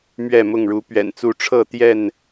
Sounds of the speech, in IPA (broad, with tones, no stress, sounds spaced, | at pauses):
m ɥ ɛ˥˨ m ʊ˥˨ ŋ ɻ u˨˦ p ɥ ɛ̰˨˩ n t͡s u˥˨ ʈ͡ʂʰ ɤ˥˨ t̪ j ɛ˥˨ n